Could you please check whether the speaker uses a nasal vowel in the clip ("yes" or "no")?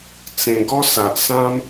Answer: yes